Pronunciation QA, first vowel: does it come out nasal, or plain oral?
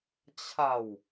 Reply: oral